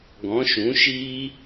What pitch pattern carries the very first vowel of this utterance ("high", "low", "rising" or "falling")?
rising